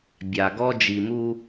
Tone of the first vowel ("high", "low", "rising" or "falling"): low